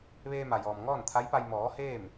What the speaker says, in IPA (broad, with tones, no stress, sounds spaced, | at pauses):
ʋ eː˧ m a˩ j ɔː˩ m ŋ ɔː˥˨ n t̪ʰ a˧˥ j p a˧ j m ɔː˩˧ h eː˥˨ m